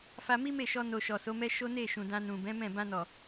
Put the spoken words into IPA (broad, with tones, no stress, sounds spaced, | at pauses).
f a˧ m i˦ m e˦˨ ʃ ɔ˧ n o˧ ʃ ɔ˨ s o˨˦ m ɛ˦ ʃ o˦ n e˦˨ ʃ ũ˨ d ã˧ n ũ˨ b ɛ̃˨˦ m ɛ̃˦˨ b ã˧ n ɔ˨